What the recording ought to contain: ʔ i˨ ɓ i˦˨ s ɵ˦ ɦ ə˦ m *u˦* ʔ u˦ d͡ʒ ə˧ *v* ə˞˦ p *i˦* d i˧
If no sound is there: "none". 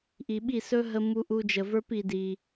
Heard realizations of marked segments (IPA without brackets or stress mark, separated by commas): u˦, v, i˧